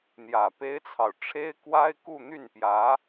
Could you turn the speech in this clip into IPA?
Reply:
n̪ j ä˨˩ p e˥ ɪ̯ t͡sʰ ɑ˨ ʊ̯ ʈ͡ʂʰ e˥ ɪ̯ k w a˥ ɪ̯ k u˥˧ n̪ y˥˩ n p j ä˧˥

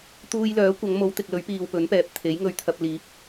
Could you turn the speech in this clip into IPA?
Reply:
t̪ uː˧ j l œː˨˥ kʷ ɐ˨˧ ŋ m o˨˧ w t̪ ɪ˨ k̚ l ɵ˨˥ ɥ p iː˨ w p ɵ˨˥ n p ɛː˨ p̚ t̪ʰ e˨˥ j ŋ ɵ˨ ɥ t̪ʰ ɐ˨ p̚ l iː˨˥ p̚

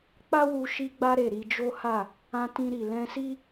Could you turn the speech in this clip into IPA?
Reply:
k͡p a˦ w u˧ ʃ i˧ ɡ͡b a˧ ɾ e˨ ɾ i˧ d͡ʒ o˦ h a˦˨ | ã˧ t ĩ˧ ɾ i˨ l ɛ̃˧ s i˦

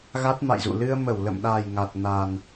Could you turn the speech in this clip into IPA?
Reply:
ɣ a˦˥ t̚ m a̰˧˨ j z ṵ˧˨ l ɨ˧ ə̯ m ə˧˩ w l ə̰˧˨ m ɗ a˨˩ j ŋ a˨˩ t̚ n a˨˩ n

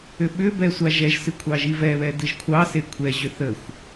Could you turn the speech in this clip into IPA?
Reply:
ʏ ɓ ʏ b ɛ sʷ a ʒ ɛ ʒ s ɨ kʷʰ ɑ ʒ i v ɛ β ɛ d ɨ ʒ kʷʰ ɑ s e kʷʰ ɛ ʑ ʏ θ ə xʷ

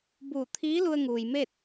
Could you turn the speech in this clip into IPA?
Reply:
b uː˧˩ t̪ʰ iː˧˥ l u˧ ə̯ ŋ uː˩ j m e˥˨ t̚

